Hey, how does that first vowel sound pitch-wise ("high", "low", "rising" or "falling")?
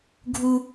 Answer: high